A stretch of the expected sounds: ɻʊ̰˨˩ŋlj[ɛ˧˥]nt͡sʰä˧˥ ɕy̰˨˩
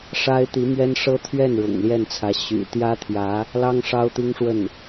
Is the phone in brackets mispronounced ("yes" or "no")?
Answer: yes